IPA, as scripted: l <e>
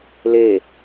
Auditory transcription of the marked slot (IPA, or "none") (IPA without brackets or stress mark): e